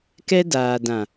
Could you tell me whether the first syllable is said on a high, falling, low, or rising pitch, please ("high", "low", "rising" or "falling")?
high